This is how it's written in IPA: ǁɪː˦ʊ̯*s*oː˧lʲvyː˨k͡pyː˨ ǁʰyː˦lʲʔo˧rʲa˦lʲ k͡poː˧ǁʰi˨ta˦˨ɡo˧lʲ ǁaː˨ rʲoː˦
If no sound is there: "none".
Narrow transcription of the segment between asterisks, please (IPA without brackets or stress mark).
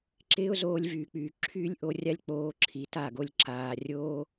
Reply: z